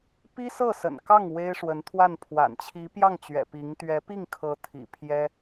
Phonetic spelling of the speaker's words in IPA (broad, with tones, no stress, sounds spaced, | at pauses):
p i˥ s ɤ˥˩ s ə̰˨˩ n k ɑ˥˩ ŋ w e˥ ɪ̯ ʂ w ə˧˥ n t̪ʰ w a˥˩ n pʰ w a̰˨˩ n t͡ɕʰ i˧˥ p j ɑ˥˩ ŋ t͡ɕ ɥ ɛ̰˨˩ p i˧˥ ŋ t̪ ɥ ɛ˧˥ p i˥˩ ŋ kʰ ɤ˧˥ t̪ʰ ḭ˨˩ pʰ j ɛ˥